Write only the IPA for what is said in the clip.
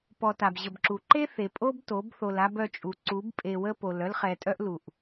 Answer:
p ɔ˨ t a˨ b ʑ ə˨ b ǁ u˨ ǃ e˦ θ e˨ pʼ o˦ b t o˨˦ b θ o˨ l a˦ b œ˦˨ t͡ʃʼ u˨ ǀ u˨˦ b pʼ e˨ w ə˦ p o˨ l œ˦ l χ ɛ˨ tʼ œ˦ ʔ l u˨ ʔ

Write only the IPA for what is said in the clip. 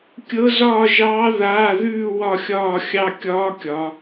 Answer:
kʲ ɤ˦˥ z ɒː˥˧ ʒ ɑː˦˥ ð aː˧˥˧ ð ʉː˥˧ w ɒ˥˧ xʲ ɒː˥˧ xʲ ɑ˥˧ kʲ ɒː˦˥ kʲ ɒ˩˧

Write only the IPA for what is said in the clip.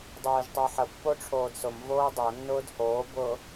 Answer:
dˤ ʊː ʒ tˤ o ħ ə pː o ʈ͡ʂʰ oː d s ʊ m v oː dˤ o nː ʊː d h oː b ʊː

